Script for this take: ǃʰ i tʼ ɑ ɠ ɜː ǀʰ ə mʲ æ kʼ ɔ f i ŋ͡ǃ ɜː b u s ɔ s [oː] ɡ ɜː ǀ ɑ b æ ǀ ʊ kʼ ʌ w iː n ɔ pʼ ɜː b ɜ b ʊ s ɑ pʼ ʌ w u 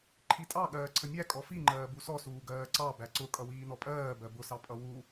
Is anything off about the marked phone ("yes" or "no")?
yes